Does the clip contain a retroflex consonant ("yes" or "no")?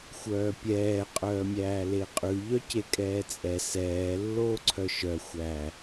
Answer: no